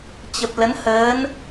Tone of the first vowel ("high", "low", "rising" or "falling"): low